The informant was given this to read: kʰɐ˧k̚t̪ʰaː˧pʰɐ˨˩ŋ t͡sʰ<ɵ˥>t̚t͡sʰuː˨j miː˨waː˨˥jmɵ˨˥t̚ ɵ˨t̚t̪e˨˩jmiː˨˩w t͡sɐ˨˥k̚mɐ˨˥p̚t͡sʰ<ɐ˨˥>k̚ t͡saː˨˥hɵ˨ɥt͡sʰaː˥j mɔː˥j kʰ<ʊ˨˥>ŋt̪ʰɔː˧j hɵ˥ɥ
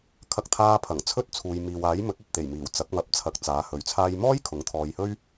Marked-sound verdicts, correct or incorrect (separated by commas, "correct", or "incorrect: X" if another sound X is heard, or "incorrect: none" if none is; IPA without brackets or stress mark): correct, correct, correct